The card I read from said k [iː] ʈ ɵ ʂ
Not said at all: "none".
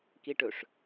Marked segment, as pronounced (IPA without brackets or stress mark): i